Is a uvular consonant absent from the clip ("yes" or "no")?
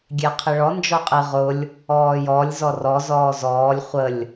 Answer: no